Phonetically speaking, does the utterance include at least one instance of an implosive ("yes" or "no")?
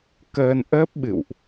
yes